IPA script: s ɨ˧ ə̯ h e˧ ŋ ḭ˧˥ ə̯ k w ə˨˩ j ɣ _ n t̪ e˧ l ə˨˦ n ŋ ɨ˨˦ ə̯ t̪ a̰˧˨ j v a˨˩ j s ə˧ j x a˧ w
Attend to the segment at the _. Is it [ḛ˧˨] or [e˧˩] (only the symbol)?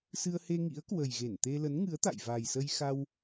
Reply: e˧˩